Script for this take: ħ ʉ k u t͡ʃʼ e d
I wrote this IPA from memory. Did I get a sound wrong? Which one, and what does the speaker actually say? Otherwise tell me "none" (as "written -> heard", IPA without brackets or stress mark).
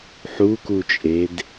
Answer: ʉ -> u